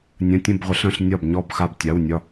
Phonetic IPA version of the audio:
nʲ ə̃˧˥˧ tʲ ə̃˥˧ b ʁʷ ə˨˥ ɬ ə̃˥ ɬ nʲ ɒ˥˧ b ɲ ɔ˥˧ b x a˥˧ b tʲ a˧˥˧ w nʲ ɒ˥˧

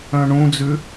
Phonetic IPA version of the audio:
œ̃ ɳ ũ d͡z ʉ

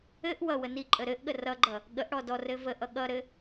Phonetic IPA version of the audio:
ɘ ʔ w ʌ w ə n i ǃʼ ə ɾ ɘ ʔ ɠ ə r ʌ ɡ͡ǃ ʌ | ɠ ə ʔ ɽ ɔ d ɔ r ɘ v ə ʔ ʌ ɠ ʌ ɾ ɘ

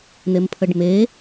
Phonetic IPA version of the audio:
n̪ e m pʰ ə ɖ m e

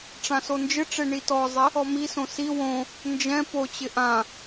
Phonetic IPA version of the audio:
ʈ͡ʂ ã s o n d͡ʒ ɪ ʈ͡ʂ e ɳ i t ɔ zˤ ɪ | ɔ m i s õ s i w õ | n d͡ʒ ɛ̃ p o t͡ɕ ɪ ʔ ã

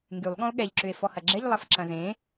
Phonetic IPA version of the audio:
ŋ ɡ y lˠ ɠ ɔ̃ o̯ ɠ ɛ ʎ ǁ ʏ e̯ f ɔ h ɐ ɡ͡ǁ ɛ ʎ lˠ ɐ f ǁ ɐ̃ z ẽ

